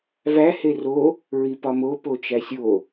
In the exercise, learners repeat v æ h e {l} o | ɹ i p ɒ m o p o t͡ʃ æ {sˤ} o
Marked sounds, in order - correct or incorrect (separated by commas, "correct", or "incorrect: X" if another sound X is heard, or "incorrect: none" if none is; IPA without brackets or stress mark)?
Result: incorrect: r, incorrect: sʲ